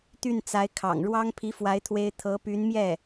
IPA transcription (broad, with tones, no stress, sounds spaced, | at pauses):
t̪ y˥˩ n t͡s a˧˥ ɪ̯ kʰ ɑ̰˨˩ ŋ ɻ w ɑ˥ ŋ pʰ i˧˥ f w a˧˥ ɪ̯ t̪ʰ w e˥ ɪ̯ t̪ʰ ɤ˧˥ p y˧˥ n m j ɛ˥˩